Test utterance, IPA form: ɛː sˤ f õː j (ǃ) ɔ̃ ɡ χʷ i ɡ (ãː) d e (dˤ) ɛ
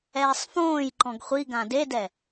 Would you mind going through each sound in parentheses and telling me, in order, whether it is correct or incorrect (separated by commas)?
correct, incorrect, incorrect